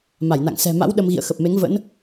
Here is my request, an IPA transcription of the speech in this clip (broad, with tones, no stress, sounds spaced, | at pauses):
m a˧˩ j n a̰˧˨ ŋ s ɛ̤˨˩ m a̰˧˥ w ɗ ə˧ m ɣ ḭ˧˨ ə̯ x ə˨˩ p̚ m e˨˦ ŋ v ə̰˧˥ n